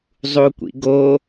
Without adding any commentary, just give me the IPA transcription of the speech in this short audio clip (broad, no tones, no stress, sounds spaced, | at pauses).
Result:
zˤ u kʷ ḭ ɡ o